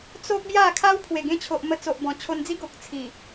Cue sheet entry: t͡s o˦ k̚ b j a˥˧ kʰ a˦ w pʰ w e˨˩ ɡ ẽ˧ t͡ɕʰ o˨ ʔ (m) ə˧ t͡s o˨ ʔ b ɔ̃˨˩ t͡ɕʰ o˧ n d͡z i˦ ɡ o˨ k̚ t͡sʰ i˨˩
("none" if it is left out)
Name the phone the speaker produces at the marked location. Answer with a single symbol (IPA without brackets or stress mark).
m